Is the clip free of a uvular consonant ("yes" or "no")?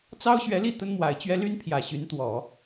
yes